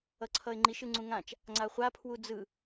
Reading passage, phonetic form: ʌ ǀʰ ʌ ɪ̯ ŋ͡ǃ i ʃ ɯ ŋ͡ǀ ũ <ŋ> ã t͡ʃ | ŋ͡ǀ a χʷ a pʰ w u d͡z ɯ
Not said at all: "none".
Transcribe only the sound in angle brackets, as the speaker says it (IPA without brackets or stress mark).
ŋ